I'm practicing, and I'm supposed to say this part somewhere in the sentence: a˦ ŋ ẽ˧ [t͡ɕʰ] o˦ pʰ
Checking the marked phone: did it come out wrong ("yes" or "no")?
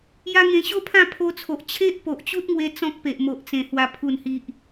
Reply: yes